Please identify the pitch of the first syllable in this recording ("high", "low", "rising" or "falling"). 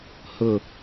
low